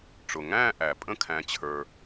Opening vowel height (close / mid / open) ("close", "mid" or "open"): close